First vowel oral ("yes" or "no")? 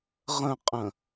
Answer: no